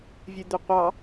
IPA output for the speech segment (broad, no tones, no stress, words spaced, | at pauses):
vʲʉd̪ʉqʷɑ